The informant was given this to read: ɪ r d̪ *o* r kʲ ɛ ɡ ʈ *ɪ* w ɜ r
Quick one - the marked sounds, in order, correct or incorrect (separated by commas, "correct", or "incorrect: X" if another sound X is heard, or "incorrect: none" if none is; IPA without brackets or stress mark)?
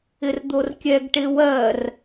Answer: correct, correct